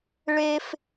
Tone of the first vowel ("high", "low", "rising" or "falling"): high